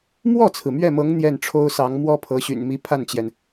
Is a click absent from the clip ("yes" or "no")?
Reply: yes